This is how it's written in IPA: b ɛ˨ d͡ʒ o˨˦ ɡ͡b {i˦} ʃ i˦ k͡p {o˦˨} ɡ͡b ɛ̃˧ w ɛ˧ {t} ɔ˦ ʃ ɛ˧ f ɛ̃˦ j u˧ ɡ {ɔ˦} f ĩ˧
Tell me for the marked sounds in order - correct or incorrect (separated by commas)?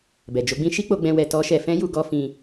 incorrect, incorrect, correct, correct